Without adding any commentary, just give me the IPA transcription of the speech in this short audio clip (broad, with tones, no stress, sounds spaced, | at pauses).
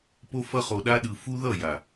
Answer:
p o˧ f ʌ˧ χ o˨ ɗ a˧ ɗ ɯ˨ f u˦ ð ʌ˦˨ j a˨